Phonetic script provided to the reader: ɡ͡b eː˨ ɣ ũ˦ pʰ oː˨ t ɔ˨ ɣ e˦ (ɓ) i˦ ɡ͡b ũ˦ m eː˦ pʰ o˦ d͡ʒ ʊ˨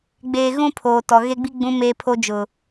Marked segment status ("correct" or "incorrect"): incorrect